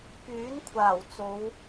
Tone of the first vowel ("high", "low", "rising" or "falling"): rising